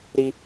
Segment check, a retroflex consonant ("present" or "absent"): absent